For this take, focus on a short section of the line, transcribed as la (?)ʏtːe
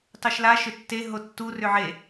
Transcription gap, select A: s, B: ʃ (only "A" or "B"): B